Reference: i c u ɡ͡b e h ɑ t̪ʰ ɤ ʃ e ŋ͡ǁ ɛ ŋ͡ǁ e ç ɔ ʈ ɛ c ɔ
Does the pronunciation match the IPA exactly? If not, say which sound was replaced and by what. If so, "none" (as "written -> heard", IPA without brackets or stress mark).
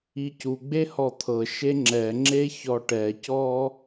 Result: ɑ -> ɔ